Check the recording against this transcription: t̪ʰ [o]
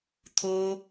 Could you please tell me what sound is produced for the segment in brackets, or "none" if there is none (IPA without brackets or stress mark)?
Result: o